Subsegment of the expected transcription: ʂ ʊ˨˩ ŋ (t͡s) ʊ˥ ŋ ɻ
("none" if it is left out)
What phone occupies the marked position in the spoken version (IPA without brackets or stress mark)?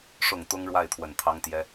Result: t̪